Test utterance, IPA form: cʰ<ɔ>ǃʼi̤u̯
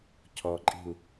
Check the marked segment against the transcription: correct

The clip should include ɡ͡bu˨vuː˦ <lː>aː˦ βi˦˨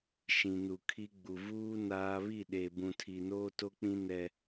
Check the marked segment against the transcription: incorrect: n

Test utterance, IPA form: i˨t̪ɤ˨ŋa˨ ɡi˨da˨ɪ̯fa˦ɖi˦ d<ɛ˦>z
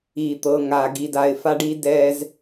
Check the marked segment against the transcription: correct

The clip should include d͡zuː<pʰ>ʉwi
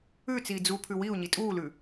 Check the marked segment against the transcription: correct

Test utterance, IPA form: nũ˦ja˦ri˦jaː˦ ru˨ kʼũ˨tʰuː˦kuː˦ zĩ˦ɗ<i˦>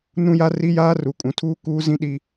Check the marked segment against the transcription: correct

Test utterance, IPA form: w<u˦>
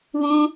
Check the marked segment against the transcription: incorrect: ũ˦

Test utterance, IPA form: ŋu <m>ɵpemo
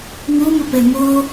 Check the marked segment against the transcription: correct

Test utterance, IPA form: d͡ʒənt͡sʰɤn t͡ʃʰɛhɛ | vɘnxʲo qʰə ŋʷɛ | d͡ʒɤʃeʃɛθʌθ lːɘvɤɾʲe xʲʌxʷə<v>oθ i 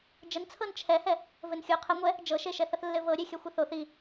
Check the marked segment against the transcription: incorrect: θ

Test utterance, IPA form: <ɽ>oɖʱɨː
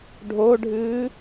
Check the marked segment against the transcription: incorrect: ɖʱ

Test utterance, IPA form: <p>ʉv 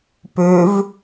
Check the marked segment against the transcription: correct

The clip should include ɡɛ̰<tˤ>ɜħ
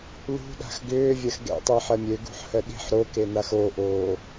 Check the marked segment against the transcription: correct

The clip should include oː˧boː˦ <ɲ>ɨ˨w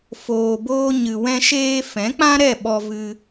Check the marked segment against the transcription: correct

